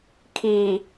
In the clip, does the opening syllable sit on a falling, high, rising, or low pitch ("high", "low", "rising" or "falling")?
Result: low